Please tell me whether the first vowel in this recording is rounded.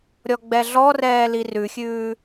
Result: yes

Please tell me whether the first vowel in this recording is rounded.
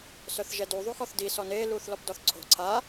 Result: yes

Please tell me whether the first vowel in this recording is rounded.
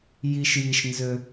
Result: no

